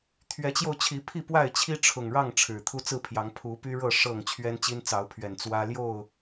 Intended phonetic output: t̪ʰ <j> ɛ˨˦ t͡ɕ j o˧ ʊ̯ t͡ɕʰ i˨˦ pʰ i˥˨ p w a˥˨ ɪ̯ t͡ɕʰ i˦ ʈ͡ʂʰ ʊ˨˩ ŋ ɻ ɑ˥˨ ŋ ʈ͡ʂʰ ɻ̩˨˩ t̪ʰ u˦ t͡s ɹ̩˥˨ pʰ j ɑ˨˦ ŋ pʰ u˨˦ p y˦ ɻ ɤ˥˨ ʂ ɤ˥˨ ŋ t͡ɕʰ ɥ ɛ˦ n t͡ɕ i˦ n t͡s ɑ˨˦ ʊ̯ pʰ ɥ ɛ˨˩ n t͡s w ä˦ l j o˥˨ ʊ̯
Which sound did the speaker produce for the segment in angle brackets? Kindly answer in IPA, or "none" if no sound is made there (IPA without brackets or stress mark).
ɥ